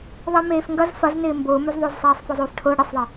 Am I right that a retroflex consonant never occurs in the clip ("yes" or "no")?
no